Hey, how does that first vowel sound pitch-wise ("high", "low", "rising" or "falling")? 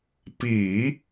low